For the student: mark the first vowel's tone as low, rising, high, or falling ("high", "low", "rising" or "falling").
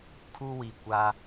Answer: high